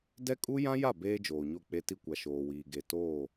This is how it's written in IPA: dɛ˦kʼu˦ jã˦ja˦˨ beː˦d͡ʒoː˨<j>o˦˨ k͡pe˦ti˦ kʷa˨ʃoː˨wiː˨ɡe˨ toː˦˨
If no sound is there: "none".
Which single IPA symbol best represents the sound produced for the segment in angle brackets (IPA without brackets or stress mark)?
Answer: ɲ